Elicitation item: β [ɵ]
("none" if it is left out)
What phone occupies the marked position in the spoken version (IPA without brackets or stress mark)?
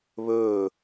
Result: ɵː